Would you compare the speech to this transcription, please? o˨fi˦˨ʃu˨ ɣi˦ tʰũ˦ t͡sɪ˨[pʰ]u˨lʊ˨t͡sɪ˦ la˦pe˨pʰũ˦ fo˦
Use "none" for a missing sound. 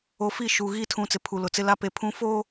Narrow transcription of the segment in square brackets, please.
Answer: pʰ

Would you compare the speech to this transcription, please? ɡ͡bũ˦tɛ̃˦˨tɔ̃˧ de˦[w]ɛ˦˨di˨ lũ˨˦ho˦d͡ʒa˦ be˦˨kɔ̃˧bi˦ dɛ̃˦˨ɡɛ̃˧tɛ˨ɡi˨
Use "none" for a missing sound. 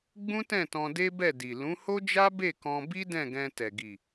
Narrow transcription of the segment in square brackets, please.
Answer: b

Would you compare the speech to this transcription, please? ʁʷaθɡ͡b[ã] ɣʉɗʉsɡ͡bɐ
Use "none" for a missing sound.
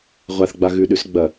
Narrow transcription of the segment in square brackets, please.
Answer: a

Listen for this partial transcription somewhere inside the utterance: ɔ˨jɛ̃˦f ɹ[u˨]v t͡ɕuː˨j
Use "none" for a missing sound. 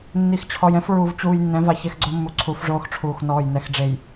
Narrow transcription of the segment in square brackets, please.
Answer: u˨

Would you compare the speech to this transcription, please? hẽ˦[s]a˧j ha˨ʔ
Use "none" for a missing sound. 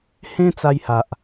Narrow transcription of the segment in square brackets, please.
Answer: t͡s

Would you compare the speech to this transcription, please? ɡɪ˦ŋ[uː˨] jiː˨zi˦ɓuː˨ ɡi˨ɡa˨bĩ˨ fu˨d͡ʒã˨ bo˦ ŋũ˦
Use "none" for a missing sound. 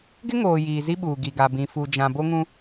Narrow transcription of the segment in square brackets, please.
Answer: oː˨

